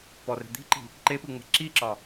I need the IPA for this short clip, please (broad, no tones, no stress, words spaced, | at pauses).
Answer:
pɔre̤ d̪i̤ǃi̤ | ǃepɯŋ͡me̤ ǁiǁɒ